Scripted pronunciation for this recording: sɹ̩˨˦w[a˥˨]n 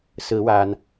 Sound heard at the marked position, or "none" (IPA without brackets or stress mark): a˨˩